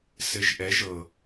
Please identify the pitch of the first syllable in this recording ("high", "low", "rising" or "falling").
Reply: rising